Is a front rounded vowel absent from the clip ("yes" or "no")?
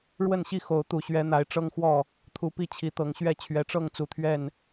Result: yes